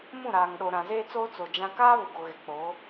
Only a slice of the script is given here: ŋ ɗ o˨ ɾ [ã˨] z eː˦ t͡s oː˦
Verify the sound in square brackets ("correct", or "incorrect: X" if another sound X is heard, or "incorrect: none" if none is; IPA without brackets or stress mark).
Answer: correct